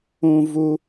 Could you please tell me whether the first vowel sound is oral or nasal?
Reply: nasal